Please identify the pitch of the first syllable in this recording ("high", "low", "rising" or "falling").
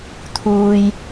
high